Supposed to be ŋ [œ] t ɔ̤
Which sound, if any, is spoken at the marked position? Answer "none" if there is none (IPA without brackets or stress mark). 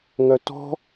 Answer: œ